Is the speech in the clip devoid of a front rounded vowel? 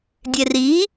yes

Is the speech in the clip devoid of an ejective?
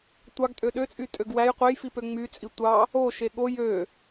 no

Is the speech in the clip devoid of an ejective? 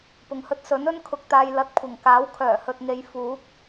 yes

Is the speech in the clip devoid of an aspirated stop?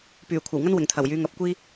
no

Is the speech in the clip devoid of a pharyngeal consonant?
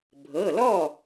yes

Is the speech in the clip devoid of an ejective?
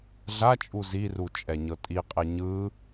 no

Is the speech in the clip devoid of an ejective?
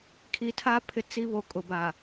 no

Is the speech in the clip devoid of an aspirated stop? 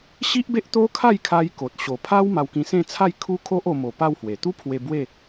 no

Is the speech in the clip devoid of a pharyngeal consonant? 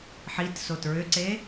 no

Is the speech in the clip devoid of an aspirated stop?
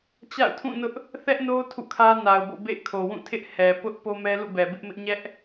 no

